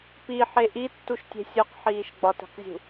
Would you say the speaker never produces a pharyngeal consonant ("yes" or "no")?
no